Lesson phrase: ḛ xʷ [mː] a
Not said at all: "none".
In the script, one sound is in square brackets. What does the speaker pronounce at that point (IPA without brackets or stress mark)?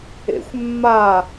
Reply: mː